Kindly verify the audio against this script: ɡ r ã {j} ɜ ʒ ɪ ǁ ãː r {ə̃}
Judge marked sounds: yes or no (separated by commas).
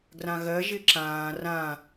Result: no, no